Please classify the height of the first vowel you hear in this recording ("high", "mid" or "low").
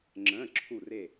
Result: mid